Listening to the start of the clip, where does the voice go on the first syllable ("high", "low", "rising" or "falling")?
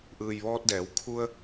low